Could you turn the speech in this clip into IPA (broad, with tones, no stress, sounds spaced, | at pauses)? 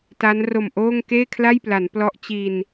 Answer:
t a˦˥ n r o˨˩ m ʔ oː˥˩ ŋ k eː˥˩ kʰ l a˥˩ j p l a˩˦ n p l ɔ˦˥ ʔ t͡ɕ i˧ n